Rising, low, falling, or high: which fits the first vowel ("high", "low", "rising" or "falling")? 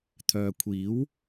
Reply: low